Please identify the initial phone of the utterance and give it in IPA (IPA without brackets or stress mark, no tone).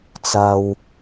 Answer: t͡s